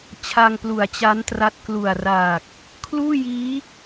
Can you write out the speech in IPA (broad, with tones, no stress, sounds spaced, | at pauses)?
t͡ɕʰ a˧ ŋ p l u˨˩ a̯ t͡ɕ a˦˥ n t r a˦˥ t̚ k l u˨˩ a̯ r aː˨˩ k̚ | kʰ l uː˥˩ j iː˦˥